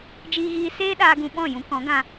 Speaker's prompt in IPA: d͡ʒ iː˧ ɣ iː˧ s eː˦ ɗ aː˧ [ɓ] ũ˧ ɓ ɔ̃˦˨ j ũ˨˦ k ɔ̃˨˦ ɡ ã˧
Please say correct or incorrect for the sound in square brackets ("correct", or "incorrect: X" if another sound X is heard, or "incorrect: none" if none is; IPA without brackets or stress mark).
incorrect: ɡ